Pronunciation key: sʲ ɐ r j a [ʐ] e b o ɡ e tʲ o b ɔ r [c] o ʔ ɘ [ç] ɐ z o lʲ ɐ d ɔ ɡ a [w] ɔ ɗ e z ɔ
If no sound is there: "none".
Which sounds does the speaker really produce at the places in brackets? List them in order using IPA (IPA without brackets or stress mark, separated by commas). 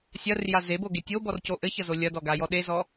z, c, ç, j